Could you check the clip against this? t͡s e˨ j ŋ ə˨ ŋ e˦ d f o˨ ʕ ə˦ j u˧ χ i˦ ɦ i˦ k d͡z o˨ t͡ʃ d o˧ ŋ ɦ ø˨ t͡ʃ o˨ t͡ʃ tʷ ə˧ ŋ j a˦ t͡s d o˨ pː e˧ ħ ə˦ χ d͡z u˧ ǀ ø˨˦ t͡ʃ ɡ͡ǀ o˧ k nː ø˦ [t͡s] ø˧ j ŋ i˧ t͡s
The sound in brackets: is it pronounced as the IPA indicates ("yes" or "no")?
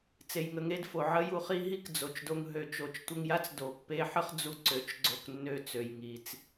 yes